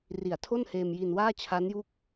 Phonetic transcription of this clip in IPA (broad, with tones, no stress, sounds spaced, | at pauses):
r i˨˩ a̯ tʰ o˥˩ n h eː˧ m j i˧ n w aː˥˩ t͡ɕʰ a˦˥ n j u˦˥ k̚